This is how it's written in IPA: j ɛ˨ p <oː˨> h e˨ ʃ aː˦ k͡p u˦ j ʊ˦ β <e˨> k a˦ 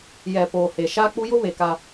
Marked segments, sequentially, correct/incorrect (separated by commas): correct, correct